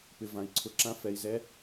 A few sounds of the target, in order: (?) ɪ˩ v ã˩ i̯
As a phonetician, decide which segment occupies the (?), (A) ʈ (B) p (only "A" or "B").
B